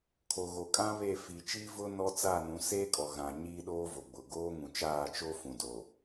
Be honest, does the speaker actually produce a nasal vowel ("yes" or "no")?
yes